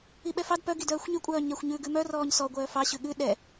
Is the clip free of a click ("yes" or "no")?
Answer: yes